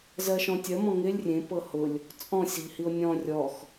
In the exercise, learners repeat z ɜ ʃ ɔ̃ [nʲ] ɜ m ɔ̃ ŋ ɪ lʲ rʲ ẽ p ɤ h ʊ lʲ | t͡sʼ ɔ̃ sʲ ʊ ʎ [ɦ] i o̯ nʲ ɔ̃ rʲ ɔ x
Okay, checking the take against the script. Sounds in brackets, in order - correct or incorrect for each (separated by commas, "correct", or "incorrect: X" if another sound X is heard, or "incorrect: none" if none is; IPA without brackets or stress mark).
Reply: incorrect: tʲ, incorrect: h